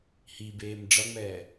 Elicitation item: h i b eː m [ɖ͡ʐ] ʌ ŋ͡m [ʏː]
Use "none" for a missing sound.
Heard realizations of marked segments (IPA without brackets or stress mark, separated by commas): ɖ͡ʐ, ɛː